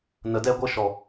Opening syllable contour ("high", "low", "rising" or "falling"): low